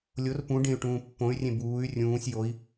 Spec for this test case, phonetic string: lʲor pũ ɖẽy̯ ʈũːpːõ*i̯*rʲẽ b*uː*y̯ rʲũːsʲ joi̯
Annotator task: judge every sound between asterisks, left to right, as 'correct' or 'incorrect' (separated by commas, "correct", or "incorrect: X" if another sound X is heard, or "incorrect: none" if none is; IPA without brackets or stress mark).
incorrect: y̯, correct